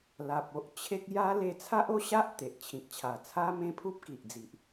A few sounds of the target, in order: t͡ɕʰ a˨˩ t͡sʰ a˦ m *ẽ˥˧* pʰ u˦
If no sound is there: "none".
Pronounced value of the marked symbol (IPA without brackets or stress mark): ẽ˦